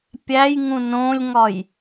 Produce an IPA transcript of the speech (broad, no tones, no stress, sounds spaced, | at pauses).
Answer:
pʲ æ j ŋ ũ n õ lʲ ŋ ɒ j